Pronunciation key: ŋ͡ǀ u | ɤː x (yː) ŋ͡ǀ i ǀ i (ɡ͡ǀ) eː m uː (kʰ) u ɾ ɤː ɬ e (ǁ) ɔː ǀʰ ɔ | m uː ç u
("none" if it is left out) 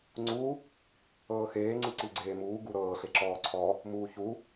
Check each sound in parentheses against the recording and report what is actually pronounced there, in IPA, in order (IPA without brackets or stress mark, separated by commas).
eː, ɡ͡ǀ, ɡ, ǁ